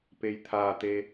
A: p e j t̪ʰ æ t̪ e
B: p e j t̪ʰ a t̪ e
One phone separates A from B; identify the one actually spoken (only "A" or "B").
B